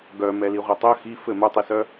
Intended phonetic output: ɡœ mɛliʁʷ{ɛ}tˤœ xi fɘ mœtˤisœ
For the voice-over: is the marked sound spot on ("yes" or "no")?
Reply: yes